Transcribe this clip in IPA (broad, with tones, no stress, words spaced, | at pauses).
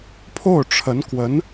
pʰo˥˩ʊ̯ʈ͡ʂʰə˧˥nkwə˧˥n